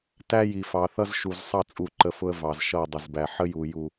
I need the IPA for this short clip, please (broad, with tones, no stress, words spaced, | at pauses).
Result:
tæ˦ji˨ fɑ˨θʌ˦zʃu˨z sˤɑ˦ t͡sʼu˦˨ǃə˦fʊ˦ə̯ vɑ˨z ʃʌ˦˨ dˤʌ˨zbæ˨ ħə˦ju˨ ju˦